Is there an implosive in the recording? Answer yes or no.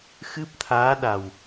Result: yes